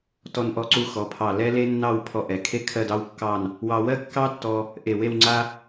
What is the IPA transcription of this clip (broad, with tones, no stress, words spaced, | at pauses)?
tɔ˧nʔɔ˧ǀu˧xɔ˩˧ pʰɑ˧˩lɛ˥le˥ nːɑ˥˧w pʰɔ˧ʔɛ˩˧ kʰe˥ kʰɜ˥˧d ɑ˥wkːɑ˥˧n | wɑ˧wɜ˥kːɑ˥tːɔ˧ | ʔe˧˩we˥˧w ŋ͡ǀa˥